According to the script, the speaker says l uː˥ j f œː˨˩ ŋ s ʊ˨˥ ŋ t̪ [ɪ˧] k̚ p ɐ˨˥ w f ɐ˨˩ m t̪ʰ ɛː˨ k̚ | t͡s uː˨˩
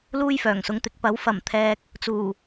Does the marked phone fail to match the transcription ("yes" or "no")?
yes